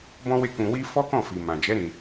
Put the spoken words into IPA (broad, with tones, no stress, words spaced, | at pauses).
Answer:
bɔ̃˦we˦˨kũ˧wi˦ fɔ˦kɔ̃˦˨ fi˨mã˨d͡ʒɛ˨˦ ɾĩ˧